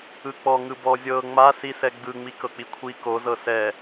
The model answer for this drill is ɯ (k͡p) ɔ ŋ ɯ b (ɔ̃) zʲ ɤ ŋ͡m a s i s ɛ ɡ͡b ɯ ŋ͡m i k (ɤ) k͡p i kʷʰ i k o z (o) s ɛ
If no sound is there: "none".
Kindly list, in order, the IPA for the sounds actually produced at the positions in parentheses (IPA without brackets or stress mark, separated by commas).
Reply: k͡p, ɔ, ɤ, ɤ